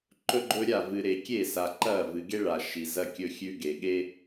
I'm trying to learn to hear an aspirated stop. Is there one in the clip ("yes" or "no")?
no